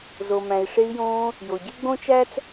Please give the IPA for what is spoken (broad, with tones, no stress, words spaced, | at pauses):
zo˩mæ̃˩i̯ʂe˧i̯jõː˧ | jo˩ɟe˥ɡ͡bõ˥t͡ʃæ˥t͡s